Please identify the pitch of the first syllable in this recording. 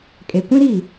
low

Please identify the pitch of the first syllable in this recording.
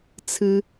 high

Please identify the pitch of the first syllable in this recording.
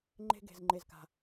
high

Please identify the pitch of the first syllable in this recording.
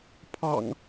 low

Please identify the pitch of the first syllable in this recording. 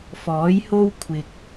rising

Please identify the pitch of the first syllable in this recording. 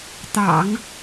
low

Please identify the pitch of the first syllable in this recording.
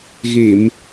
low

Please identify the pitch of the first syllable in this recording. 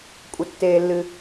low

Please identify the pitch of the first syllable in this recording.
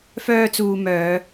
high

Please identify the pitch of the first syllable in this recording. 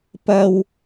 high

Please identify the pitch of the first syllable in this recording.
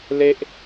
high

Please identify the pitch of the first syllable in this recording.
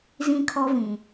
high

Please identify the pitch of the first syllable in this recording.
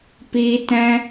high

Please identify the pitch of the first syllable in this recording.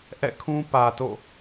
falling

